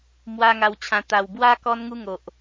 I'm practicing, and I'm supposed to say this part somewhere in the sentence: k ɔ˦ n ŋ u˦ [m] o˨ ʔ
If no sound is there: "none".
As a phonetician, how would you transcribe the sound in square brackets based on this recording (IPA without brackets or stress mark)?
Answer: ŋ